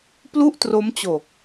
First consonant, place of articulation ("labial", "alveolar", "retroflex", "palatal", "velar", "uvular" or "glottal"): labial